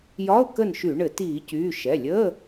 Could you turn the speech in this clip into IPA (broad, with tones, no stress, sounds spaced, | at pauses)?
j ɒ˧˥˧ ʊ̯ k ə˥˨ n ʃ y˧˩˧ ɳ ɘ˧˩˧ t iː˧˩˧ c yː˩˧˩ ʃ ɛ˩˧˩ lʲ əː˧˥˧